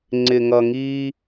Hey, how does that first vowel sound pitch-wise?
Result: low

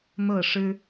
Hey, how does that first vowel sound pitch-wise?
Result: falling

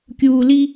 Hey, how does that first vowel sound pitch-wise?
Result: low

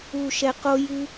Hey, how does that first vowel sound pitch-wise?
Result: low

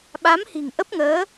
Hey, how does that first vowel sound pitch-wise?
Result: rising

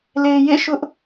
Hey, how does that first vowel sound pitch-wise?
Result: low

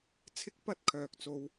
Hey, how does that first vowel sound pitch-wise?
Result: high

